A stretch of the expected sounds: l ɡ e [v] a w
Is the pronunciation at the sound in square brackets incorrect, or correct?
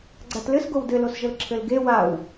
incorrect